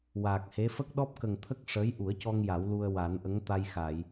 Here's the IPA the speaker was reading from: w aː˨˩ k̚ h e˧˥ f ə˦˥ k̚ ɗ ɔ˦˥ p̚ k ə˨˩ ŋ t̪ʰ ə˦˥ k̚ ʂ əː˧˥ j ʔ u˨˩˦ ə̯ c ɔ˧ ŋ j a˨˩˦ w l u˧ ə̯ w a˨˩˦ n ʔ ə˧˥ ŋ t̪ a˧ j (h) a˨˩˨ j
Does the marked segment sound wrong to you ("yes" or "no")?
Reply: yes